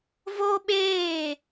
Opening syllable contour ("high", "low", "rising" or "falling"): high